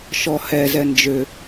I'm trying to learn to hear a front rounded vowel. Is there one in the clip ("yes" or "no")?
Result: yes